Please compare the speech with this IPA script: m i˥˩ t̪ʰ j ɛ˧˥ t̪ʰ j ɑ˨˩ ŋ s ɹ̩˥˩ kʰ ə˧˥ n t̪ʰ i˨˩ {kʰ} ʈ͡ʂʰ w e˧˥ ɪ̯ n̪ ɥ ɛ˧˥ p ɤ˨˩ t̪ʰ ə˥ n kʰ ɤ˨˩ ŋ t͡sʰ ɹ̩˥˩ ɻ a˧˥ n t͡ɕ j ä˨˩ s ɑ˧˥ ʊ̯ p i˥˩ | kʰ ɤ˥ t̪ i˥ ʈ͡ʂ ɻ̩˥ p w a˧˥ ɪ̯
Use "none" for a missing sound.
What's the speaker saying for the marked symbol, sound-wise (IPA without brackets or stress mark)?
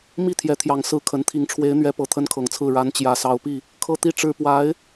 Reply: ŋ